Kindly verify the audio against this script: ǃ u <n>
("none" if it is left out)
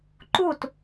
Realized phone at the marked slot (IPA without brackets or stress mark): t